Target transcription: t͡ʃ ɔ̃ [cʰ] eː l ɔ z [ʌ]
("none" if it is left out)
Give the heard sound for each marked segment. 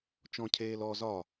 cʰ, ɒ

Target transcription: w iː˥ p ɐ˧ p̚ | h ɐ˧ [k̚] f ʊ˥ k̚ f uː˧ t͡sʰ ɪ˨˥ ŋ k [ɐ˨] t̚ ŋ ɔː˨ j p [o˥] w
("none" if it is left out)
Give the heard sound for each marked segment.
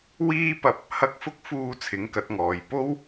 k̚, ɐ˨˥, o˥

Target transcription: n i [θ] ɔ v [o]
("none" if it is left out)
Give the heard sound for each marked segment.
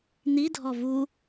dʱ, u

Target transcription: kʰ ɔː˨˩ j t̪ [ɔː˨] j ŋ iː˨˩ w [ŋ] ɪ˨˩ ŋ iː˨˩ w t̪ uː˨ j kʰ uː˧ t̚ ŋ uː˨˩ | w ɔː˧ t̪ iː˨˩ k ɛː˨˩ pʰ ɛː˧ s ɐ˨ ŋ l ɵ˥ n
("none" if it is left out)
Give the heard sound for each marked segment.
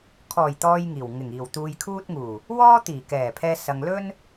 ɔː˨, ŋ

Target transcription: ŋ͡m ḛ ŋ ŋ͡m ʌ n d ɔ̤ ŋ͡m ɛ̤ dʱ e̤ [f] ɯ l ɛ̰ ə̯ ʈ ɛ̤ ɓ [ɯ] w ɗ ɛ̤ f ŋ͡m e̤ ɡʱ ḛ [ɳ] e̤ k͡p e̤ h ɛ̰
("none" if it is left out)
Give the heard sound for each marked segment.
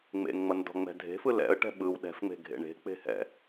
f, ɯ, ɳ

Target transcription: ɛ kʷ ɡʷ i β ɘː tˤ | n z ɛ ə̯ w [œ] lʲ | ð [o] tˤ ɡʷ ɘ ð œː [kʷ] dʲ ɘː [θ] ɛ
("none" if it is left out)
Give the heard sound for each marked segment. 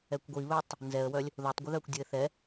œ, o, kʷ, θ

